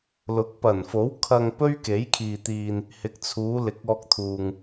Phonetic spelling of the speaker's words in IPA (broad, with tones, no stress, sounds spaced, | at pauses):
l ʊ˨˥ k̚ p ɐ˨˩ n f o˨˥ w kʰ ɐ˧ ŋ p ɵ˥ ɥ k e˨˥ j kʰ iː˨ t̪ iː˨ n | h ɪ˨ k̚ t͡sʰ uː˨˧ l ɪ˨˥ k̚ ɔː˧ k̚ t̪ʰ uː˨ ŋ